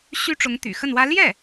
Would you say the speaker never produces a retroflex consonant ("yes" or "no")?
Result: no